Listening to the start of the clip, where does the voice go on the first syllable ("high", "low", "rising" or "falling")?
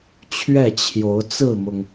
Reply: falling